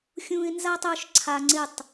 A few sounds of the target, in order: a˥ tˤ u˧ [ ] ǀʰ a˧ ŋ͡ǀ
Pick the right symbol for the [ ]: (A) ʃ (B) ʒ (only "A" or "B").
A